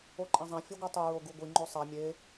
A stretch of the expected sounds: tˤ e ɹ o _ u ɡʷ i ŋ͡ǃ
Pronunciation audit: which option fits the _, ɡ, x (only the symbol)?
ɡ